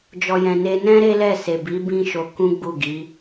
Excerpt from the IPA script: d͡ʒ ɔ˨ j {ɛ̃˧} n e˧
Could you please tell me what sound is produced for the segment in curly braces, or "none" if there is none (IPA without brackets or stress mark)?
ɛ̃˧